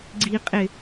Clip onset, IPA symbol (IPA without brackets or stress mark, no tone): ɡ͡ǀ